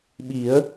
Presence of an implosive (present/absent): present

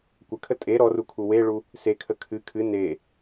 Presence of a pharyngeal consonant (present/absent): absent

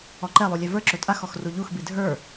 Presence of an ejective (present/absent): present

